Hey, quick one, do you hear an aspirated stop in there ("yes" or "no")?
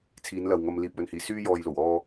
yes